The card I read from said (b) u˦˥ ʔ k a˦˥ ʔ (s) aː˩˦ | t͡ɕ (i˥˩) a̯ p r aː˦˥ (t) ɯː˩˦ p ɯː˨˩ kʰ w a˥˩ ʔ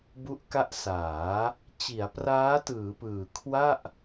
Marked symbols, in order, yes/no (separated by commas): yes, yes, no, yes